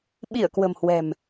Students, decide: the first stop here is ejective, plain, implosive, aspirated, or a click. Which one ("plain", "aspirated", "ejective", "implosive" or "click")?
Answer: implosive